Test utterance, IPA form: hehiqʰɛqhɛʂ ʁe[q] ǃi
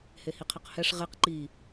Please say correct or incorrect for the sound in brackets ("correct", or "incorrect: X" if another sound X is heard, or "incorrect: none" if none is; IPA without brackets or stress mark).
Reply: correct